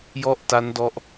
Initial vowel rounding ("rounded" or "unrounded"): rounded